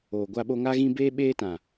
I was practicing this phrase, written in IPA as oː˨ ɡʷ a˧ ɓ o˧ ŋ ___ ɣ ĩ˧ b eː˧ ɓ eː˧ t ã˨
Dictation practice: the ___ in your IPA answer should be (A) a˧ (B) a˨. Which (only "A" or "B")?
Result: A